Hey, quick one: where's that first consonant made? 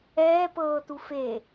lips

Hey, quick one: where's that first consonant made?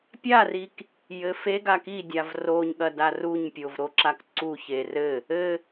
lips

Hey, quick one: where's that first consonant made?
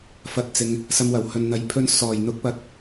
lips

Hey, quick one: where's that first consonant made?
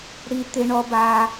retroflex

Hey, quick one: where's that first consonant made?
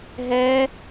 throat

